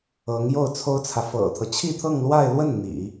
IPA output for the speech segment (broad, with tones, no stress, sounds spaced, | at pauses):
ɤ˧˥ ŋ j o˥˩ ʊ̯ t͡sʰ o˥ ʊ̯ t͡sʰ ä˨ f ɤ̰˨˩ t̪ʰ ɤ˦ t͡ɕʰ i˥˧ t̪ʰ ɤ˥˧ ŋ l w a˥˧ ɪ̯ l w ə˥˩ n n̪ ḭ˨˩˦